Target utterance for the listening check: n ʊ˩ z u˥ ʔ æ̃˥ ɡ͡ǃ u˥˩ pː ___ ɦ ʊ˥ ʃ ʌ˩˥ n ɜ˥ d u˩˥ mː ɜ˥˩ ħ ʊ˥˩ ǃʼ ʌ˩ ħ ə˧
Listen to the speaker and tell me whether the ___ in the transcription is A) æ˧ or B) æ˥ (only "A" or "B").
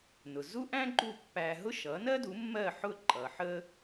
A